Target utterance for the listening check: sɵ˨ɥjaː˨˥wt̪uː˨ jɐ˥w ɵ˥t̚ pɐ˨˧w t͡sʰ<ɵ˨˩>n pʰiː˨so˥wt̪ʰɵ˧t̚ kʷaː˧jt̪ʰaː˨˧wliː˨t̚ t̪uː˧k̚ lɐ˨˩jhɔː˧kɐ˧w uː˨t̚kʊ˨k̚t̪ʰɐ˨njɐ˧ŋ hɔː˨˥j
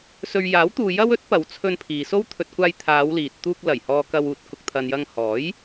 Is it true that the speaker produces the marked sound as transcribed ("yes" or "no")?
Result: no